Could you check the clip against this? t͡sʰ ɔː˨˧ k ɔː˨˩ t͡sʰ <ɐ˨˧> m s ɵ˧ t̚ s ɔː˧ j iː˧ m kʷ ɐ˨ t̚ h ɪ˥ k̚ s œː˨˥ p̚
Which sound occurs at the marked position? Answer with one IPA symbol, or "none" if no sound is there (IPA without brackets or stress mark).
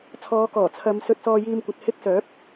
ɐ˨˧